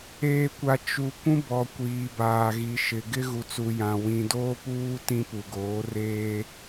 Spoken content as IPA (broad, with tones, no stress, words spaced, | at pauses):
eː˨kʷa˨ t͡ʃu˨ kʷũ˦bɔ˨ kʷiː˨baː˨ɣi˨ ʃɪ˨ɡɪ˦ ɣu˨t͡su˨ jã˨ wĩ˨doː˦puː˦ tĩ˦pu˨ɡoː˨˦ reː˦